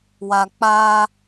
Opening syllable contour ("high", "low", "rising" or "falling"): low